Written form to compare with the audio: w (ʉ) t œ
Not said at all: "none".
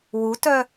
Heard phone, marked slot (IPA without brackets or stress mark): u